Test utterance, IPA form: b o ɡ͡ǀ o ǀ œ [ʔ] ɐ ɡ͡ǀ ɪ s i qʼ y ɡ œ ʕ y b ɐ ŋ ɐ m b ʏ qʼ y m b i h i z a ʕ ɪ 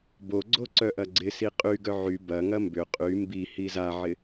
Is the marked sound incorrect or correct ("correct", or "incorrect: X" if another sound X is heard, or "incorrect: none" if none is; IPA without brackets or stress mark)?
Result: correct